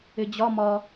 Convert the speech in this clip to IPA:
ɪd͡ʑɒ mɒ

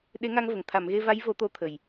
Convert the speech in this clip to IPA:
ɗe˧˥ŋa˧ŋvə˨˩˨ŋ t̪ʰa˨˩˨mɣe˧va˧˥jvo˨˩˦ t̪o˧t̪ʰə˨˩j

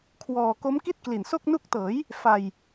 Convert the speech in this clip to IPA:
kʰwɔː˧ ko˦˥mki˥˩t̚kli˨˩nso˥˩k̚ nu˦˥k̚tɤː˩˦j | fa˧j

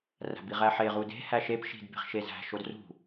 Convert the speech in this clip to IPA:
ræ̤biʁæħe ʁude̤ hæʃep ʃi̤d be̤χʃezæ̤ ʃodrṳ

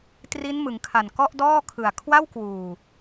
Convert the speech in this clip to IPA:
tri˦˥nmɯ˩˦ŋkʰa˨˩n kɔ˥˩ʔdɔː˥˩kʰɯ˨˩a̯ kʰwa˥˩wkwuː˨˩

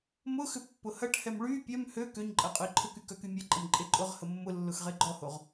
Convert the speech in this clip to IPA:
mʊxʏ pːʊhɐʈhɛm ɭy pʲœm hø køɲǃʼɐ qʼʊi̯ǃʰʊky kœkymʲɛǃʼəm ǃʼeǃʼʊʁhə mːʊlːʊx ʁeɡ͡ǃɔhoʁ

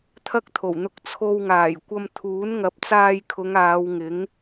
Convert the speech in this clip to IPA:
t̪ʰɐ˥k̚t̪ʰo˨˩wn̪ʊ˧k̚ t͡sʰo˧wŋaː˨˩jkʷɐ˧m t̪ʰuː˨˥nŋɐ˨˥p̚ t͡saː˧jkʰʊ˨˧ŋ aː˨˧wŋɪ˨˥ŋ

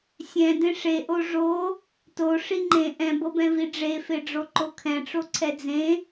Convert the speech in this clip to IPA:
sʲɛ̃ dẽʂeʔo ʐo | to ʂiŋ͡ǃẽ ʔɛ̃bɤbɛ̃vi ɖ͡ʐefeɖ͡ʐo ǃokʰɛ̃ʈ͡ʂo ǀʰɛd͡zẽ

